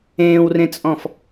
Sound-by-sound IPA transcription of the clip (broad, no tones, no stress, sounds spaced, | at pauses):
ẽː w r ẽ t͡sʼ ɔ̃ f